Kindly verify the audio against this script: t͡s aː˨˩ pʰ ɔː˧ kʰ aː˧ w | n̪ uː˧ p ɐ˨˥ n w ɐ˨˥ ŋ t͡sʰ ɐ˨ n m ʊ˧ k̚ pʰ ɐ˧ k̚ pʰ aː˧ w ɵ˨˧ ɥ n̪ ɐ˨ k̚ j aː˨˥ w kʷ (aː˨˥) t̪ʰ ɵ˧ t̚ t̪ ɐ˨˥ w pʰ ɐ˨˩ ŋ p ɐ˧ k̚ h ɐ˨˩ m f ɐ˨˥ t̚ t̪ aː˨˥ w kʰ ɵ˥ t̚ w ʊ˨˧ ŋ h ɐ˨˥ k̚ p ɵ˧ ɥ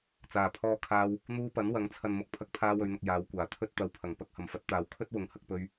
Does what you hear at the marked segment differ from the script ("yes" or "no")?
yes